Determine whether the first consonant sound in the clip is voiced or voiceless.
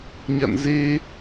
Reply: voiced